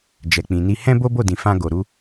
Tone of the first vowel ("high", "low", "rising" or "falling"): low